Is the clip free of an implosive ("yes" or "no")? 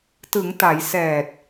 yes